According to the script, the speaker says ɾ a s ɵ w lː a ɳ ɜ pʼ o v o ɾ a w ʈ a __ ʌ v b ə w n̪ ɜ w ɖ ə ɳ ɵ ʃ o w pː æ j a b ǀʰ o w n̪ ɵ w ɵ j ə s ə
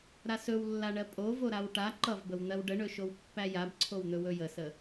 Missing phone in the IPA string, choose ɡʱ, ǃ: ǃ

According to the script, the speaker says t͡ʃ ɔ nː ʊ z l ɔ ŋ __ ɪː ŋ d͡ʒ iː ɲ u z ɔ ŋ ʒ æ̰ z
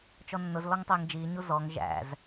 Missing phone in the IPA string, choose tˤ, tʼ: tˤ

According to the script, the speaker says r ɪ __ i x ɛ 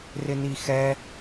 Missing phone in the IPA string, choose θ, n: n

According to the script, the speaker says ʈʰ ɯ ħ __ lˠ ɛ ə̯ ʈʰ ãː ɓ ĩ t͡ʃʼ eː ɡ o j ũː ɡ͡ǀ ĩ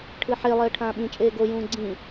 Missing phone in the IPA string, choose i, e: e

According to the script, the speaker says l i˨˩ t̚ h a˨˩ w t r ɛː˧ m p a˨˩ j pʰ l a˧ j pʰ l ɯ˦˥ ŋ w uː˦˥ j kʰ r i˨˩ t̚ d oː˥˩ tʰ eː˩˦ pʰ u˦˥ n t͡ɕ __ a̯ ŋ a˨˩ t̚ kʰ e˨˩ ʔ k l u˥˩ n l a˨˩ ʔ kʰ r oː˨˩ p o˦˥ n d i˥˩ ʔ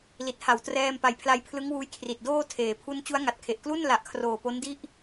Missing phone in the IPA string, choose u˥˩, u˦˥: u˦˥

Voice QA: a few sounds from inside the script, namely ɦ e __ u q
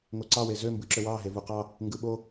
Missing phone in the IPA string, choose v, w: v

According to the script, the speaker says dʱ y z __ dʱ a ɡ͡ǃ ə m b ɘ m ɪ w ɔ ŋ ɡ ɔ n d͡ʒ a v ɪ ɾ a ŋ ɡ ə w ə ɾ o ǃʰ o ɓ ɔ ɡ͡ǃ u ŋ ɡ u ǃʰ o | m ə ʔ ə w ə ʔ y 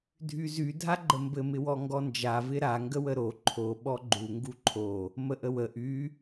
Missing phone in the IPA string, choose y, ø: y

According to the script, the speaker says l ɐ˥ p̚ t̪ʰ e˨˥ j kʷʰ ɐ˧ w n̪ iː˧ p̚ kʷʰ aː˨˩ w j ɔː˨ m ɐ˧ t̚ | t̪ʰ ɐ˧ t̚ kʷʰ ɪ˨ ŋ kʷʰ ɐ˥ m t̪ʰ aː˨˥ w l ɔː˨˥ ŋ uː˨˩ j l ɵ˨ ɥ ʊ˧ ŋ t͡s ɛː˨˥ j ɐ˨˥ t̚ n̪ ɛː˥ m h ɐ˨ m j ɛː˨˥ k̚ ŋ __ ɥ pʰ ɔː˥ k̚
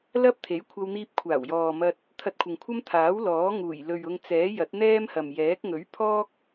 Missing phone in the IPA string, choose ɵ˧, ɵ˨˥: ɵ˨˥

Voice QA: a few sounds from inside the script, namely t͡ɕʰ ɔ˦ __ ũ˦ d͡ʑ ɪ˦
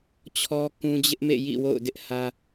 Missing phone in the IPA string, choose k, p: k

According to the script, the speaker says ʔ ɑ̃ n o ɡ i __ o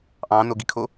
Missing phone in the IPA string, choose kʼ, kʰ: kʰ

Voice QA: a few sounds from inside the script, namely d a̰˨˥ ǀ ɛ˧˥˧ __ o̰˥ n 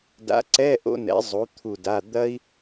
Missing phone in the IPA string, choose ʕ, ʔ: ʔ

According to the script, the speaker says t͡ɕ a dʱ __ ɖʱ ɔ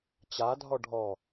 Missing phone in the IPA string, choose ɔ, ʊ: ɔ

